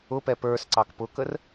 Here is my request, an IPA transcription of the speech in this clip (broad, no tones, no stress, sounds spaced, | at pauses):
ʊ p ɛ p ə˞ s ǀ ɑ k p ʊ k ə r